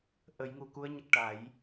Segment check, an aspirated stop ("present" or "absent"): absent